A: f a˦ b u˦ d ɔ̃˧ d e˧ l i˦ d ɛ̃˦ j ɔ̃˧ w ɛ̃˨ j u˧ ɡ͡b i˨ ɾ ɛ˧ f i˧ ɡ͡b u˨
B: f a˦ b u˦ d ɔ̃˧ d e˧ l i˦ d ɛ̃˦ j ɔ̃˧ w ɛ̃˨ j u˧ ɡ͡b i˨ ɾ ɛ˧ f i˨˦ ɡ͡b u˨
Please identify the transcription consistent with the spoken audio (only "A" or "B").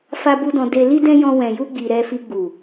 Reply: A